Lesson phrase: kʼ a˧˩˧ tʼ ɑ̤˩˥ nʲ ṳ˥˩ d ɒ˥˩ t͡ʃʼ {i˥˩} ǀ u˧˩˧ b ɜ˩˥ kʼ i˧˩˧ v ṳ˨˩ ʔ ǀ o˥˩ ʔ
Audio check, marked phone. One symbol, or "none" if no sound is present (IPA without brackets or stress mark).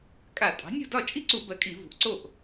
i˥˩